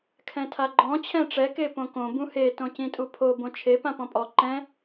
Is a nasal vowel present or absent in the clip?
present